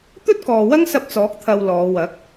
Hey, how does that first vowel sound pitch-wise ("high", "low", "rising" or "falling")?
high